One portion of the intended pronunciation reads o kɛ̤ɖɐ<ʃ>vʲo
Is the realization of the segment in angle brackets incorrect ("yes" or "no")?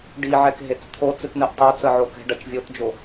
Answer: yes